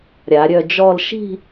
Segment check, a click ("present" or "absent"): absent